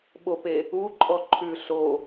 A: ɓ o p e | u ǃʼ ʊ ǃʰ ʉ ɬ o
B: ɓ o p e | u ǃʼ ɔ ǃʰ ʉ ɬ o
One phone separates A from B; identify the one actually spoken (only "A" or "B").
B